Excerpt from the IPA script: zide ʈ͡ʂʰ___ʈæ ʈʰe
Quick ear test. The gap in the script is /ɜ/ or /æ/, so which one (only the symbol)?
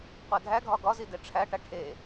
æ